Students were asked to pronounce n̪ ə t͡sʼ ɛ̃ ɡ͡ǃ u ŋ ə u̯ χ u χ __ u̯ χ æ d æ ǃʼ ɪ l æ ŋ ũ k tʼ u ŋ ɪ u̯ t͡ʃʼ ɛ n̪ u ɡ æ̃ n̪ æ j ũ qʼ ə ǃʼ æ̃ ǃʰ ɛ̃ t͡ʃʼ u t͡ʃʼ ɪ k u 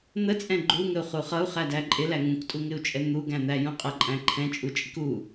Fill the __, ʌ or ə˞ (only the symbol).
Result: ʌ